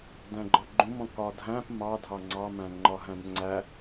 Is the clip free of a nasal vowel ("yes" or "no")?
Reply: no